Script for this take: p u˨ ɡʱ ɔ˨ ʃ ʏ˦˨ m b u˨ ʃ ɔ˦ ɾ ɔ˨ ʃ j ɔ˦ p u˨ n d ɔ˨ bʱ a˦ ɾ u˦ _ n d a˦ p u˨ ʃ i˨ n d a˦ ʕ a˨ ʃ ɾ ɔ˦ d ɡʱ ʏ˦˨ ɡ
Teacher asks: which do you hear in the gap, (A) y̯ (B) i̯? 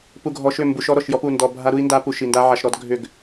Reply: B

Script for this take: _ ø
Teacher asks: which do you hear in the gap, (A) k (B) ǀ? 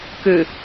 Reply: A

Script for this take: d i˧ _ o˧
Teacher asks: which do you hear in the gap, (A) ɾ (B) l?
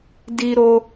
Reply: A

